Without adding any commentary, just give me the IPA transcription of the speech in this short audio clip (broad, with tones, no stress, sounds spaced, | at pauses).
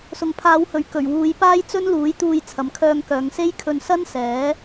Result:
s ʊ˨ ŋ pʰ aː˨˧ w h ɵ˨ ɥ k ɵ˨˩ ɥ w uː˨˧ j p aː˥ j t͡s ɵ˥ n l uː˨˥ j t̪ uː˧ j t͡sʰ ɐ˨ m kʰ œː˧ ŋ k œː˨˧ ŋ s e˥ j kʰ ɵ˧ n s ɐ˥ n s ɛː˨˥